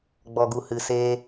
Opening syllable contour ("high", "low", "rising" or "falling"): low